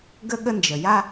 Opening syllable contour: high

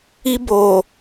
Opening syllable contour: high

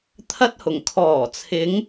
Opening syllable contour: high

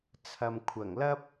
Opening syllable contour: low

